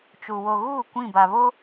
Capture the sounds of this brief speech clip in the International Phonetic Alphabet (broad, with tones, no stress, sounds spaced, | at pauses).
t͡ʃ u˨ w o˨ ɣ uː˦˨ kʷ ĩ˦˨ b a˨ β o˦